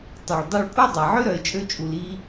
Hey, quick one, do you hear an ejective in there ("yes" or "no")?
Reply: yes